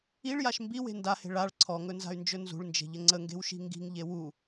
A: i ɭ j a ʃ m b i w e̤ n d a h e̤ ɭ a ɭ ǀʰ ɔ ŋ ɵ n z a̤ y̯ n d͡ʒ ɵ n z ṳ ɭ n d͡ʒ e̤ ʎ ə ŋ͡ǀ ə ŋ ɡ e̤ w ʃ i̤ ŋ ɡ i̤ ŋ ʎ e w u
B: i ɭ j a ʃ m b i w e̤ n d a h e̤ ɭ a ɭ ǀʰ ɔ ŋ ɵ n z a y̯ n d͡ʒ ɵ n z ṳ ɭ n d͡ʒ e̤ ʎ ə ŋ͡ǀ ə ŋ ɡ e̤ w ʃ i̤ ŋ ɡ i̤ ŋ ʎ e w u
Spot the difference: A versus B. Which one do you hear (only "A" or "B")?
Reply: A